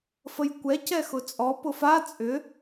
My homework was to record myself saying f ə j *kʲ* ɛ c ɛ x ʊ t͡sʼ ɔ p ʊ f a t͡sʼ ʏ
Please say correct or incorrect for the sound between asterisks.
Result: incorrect